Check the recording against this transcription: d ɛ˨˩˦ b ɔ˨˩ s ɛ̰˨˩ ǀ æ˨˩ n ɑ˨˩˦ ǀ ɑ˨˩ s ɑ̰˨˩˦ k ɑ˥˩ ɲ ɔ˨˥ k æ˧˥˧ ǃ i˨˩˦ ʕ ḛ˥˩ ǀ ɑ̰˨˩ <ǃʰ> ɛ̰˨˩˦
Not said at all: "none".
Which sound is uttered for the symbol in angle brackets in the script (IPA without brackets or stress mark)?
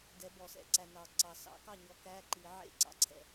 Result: ǀʰ